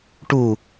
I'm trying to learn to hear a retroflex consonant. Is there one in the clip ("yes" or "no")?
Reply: yes